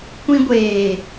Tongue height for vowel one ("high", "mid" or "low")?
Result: high